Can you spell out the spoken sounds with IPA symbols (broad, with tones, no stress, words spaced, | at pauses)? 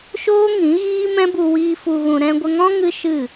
ʃoː˦ ŋĩ˨˦ɣiː˦mɛ̃˦bu˧ wiː˦ fu˧ɣũ˧ ɾɛ̃˧ɡʷə˧ŋɔ̃˦ ŋɨ˦ʃɨ˦˨